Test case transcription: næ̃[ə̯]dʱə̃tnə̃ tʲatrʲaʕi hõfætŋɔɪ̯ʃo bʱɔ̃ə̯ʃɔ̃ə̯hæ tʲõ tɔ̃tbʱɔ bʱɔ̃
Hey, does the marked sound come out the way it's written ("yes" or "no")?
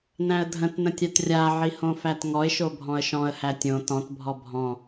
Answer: yes